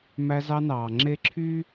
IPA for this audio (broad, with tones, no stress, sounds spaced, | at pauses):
m æ˦ z ɑ˦ n ɑː˨ ŋ͡ǁ e˦ ǁʰ y˦